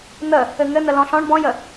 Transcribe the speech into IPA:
n̪ ə | ɘ ŋ ɘ n̪ ə l ɔ̃ ɬ ɔ̃ ɳ b ɔ̃ j ə

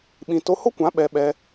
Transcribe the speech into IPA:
ɓ ĩ˧ t o˧ h o˦ kʷ ã˨˦ ɓ ɛ˧ ɓ ɛ˧

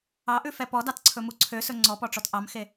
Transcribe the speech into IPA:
ɑ ʔ ʉ f ɛ p ɔ d ɑ t ǀʰ ɵ m u ǀʰ ø s ɵ ŋ͡ǀ ɔ p ɔ ʈ͡ʂ ɔ t ʔ ɑ m x e

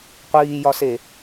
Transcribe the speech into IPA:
qʷ iː j ɒ s e

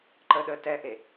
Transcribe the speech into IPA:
ǃ ə ɗ ə t ɛ ʔ e

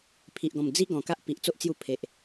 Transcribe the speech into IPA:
pʰ i˨ ʔ ɡ ɔ̃˨˩ m d͡z i˦ ɡ ɔ̃˨˩ k a˦ ʔ p i˨ ʔ t͡s o˦ ʔ t͡s j u˧ pʰ e˨ ʔ

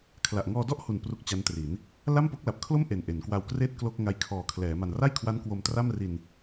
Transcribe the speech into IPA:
kʰ l a˨˩ ʔ ŋ ɔː˧ d ɔ˥˩ ʔ h u˨˩ n p r u˦˥ k̚ t͡ɕ a˦˥ n t r i˩˦ n | l a˥˩ m p o˦˥ k̚ l a˨˩ p̚ kʰ l o˥˩ m ʔ e˨˩ n ʔ e˩˦ n k w a˧ w k r eː˥˩ t̚ k l o˥˩ k̚ ŋ a˧ j kʰ ɔː˨˩ kʰ l ɛː˩˦ m a˨˩ n r a˥˩ j kʰ w a˦˥ n k w o˧ m t r a˥˩ m r i˧ n

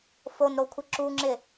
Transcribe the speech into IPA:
f o n ɾ o kʷʰ ɪ ǁ u ŋ͡ǁ ɪ

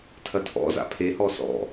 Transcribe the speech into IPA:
tʰ ɐ tʰ ɔ̰ z a̰ pʰ e h ɔ s ɔ̰

